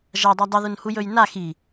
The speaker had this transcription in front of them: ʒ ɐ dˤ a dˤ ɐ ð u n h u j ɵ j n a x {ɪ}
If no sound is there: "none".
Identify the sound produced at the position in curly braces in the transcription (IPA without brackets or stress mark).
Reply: i